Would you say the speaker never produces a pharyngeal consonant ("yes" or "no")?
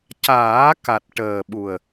yes